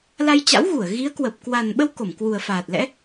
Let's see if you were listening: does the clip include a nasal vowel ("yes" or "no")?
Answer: no